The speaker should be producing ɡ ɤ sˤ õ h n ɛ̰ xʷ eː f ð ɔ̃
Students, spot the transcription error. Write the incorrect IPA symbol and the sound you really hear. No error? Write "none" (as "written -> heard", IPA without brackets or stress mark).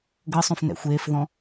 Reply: h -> f